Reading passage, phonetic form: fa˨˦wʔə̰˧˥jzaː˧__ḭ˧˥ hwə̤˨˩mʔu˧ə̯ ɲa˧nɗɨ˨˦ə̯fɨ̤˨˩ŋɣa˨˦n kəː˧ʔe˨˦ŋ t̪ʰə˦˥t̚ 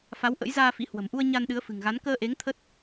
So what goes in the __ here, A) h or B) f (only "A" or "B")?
B